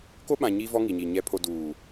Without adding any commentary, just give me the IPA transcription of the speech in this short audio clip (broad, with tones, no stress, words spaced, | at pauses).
ko˦ɓã˨ ɲiː˦vɔ˦ŋi˨ɲiː˨ ɲɛ˨pʰo˨ duː˨